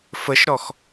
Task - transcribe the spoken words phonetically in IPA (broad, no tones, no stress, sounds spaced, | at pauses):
f ə ʃ ɾ ɔ x